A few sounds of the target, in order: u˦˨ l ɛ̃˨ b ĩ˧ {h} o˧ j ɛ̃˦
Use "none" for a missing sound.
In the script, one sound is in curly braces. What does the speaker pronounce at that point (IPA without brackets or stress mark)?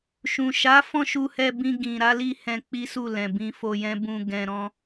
f